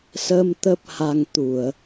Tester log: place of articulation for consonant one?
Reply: alveolar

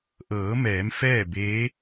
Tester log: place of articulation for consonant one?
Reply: glottal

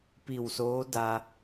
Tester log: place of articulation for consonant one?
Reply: labial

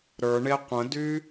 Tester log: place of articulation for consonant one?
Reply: alveolar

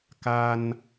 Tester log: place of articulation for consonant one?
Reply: velar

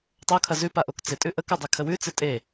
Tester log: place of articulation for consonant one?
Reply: alveolar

